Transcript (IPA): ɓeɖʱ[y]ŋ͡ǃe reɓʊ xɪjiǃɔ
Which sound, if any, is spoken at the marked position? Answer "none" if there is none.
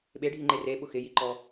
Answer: i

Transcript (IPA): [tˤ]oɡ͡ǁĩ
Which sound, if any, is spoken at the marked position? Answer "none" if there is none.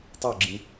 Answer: tˤ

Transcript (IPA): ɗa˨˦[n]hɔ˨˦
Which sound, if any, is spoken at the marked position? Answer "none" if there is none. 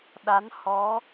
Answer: n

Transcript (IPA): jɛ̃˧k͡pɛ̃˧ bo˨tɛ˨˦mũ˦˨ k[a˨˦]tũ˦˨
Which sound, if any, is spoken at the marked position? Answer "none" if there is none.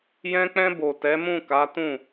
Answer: a˨˦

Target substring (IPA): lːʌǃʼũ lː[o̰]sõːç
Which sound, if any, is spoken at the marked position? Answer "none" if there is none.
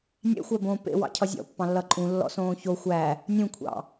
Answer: ɔ̰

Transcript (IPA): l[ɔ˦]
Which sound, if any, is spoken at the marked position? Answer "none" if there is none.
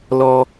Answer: ɔ˦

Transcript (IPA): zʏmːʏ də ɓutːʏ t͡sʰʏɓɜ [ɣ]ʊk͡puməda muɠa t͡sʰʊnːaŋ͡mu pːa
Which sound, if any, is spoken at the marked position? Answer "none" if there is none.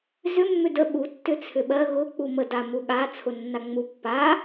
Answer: ɣ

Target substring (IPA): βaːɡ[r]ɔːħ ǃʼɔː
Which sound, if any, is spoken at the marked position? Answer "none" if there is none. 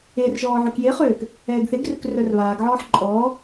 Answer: ʕ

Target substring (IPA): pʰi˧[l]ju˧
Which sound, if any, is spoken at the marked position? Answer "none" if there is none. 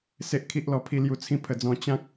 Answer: l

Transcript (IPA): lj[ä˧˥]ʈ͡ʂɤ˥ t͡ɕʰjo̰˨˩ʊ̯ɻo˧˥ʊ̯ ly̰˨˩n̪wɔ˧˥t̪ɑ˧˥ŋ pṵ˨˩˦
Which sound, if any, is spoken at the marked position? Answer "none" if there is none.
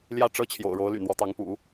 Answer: ä˥˩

